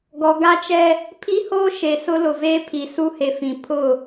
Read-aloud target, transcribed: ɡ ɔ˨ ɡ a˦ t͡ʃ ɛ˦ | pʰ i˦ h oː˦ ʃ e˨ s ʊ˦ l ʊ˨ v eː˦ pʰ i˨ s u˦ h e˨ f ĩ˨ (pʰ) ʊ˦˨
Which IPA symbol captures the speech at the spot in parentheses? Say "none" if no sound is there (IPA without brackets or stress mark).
pʰ